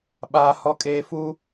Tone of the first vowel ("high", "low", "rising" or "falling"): low